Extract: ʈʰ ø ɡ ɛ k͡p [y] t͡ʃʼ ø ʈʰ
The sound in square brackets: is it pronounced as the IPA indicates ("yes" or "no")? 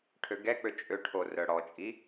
no